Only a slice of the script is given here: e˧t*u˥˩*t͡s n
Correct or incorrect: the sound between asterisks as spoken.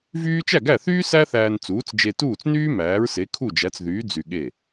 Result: incorrect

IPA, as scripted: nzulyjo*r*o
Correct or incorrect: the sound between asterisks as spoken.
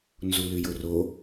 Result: correct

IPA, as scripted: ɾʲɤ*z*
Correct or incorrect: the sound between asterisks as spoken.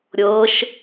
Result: incorrect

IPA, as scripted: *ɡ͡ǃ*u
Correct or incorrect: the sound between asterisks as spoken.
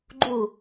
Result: correct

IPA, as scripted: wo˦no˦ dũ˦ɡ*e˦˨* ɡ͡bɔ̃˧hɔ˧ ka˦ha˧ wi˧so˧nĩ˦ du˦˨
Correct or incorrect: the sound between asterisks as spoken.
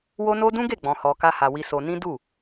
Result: correct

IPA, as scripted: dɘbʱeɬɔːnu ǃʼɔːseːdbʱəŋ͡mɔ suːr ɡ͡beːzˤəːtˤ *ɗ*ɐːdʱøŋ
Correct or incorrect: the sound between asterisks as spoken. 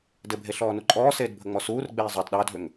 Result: correct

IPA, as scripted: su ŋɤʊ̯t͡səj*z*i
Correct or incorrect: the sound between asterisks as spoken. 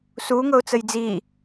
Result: incorrect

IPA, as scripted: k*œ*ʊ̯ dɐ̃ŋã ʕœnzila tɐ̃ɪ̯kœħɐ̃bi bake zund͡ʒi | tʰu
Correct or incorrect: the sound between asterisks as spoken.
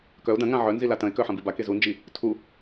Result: correct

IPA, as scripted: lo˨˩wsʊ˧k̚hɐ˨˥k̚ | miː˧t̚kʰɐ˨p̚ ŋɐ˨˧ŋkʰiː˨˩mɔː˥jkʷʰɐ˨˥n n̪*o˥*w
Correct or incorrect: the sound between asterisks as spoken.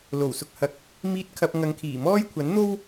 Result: correct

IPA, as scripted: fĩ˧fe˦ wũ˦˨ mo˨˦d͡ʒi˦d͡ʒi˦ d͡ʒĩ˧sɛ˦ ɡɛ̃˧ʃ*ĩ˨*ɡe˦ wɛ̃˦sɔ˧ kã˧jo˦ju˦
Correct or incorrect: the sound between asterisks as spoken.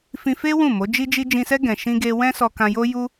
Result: incorrect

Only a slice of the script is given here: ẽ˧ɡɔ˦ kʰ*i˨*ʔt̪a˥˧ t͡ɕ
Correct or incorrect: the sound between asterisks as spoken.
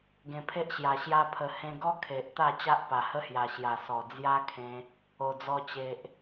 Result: incorrect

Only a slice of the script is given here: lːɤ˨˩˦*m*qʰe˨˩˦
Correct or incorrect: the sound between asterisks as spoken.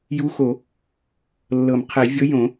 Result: correct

